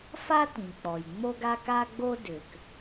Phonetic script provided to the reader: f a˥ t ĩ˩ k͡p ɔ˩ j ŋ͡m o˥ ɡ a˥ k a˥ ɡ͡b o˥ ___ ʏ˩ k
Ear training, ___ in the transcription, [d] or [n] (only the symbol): d